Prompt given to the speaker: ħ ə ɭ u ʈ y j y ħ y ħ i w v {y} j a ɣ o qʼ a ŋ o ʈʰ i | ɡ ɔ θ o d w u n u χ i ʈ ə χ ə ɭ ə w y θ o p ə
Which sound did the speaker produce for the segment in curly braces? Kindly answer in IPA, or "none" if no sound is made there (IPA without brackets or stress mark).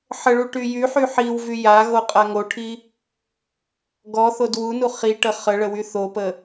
y